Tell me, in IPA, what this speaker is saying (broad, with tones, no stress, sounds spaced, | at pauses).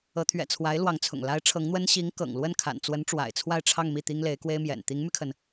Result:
ɤ˧˥ t̪ʰ ɥ ɛ̰˨˩ t͡sʰ w a˧˥ ɪ̯ l w ɑ˧˥ ŋ t͡sʰ ʊ̰˨˩ ŋ l a˧˥ ɪ̯ ʈ͡ʂʰ ɤ˧˥ ŋ n̪ w ə˥ n ɕ i˧˥ ŋ k ɤ̰˨˩ ŋ l w ə˥˩ n kʰ a̰˨˩ n t͡s w ə˧˥ n ʈ͡ʂ w a̰˨˩ ɪ̯ t͡sʰ w a˥˧ ɪ̯ ʈ͡ʂʰ ɑ˥˧ ŋ m i˥˩ t̪ i˥ ŋ l e˧˥ ɪ̯ k w e˥ ɪ̯ m j ɛ̰˨˩ n t̪ i˧˥ ŋ m y˧ kʰ ə˩ n